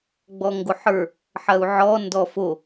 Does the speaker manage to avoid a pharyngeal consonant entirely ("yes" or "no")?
no